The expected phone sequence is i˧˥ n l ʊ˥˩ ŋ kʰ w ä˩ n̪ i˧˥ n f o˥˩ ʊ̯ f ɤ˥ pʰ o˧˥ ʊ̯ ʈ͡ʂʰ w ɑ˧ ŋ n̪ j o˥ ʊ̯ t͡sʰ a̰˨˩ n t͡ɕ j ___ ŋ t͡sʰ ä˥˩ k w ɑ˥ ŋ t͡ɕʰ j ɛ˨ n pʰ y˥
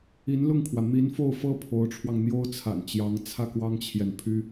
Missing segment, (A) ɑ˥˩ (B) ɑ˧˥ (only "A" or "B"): B